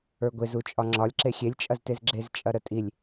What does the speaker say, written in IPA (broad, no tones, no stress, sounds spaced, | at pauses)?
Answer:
ə˞ ɡʷ e z u t͡ʃʼ ɒ ŋ͡ǁ ɒ lʲ ǁ e xʲ e lʲ t͡ʃʼ ɐ z t e z ɡ͡ǁ e z t͡ʃʼ ɐ ɾ ə tʼ i lʲ